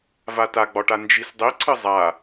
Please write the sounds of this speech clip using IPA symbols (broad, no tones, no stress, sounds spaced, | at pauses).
v a t a ɡ͡b ɒ ʈ a n d͡ʒ i s dˤ i ǀʰ ɨ zˤ a